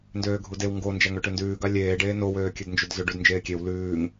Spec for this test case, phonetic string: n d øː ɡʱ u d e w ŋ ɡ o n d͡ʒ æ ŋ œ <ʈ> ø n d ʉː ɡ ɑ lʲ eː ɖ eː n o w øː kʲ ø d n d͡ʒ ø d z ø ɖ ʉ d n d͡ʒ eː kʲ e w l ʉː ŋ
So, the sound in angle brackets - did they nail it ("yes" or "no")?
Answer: yes